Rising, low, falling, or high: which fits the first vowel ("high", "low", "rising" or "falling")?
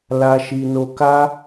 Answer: low